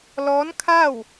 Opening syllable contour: rising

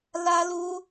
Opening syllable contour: high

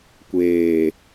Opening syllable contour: low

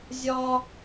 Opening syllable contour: high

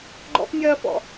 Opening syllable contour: high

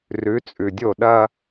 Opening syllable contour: rising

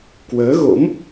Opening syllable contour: rising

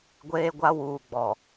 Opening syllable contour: high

